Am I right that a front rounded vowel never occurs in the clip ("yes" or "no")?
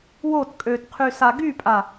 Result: no